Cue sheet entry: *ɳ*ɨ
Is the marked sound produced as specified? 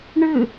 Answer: yes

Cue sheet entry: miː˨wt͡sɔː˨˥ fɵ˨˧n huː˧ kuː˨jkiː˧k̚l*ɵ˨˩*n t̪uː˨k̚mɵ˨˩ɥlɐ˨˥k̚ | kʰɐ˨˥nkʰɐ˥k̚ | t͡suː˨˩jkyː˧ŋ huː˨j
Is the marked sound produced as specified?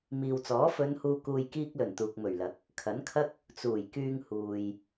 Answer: yes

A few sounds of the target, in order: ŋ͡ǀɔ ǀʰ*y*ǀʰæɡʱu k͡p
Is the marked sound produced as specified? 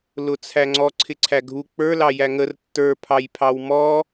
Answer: no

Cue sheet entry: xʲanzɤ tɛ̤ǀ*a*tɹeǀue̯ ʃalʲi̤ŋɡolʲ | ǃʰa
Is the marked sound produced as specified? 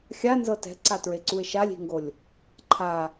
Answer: yes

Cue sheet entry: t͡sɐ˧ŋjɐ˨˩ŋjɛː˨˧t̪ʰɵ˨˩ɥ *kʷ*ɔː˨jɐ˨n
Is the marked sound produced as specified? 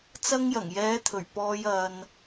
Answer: no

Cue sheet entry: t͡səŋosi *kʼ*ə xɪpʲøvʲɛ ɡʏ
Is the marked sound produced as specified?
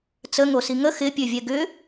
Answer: no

